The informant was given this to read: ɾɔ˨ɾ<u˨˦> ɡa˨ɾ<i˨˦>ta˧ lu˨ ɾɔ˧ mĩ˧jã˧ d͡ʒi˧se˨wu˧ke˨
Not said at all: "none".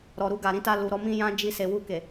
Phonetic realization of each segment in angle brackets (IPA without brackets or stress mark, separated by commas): u˧, ĩ˨˦